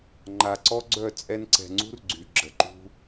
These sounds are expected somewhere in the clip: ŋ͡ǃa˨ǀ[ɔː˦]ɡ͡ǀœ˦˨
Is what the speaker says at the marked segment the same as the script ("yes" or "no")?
no